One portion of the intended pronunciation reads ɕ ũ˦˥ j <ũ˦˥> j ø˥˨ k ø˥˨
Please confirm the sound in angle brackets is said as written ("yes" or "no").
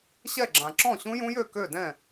yes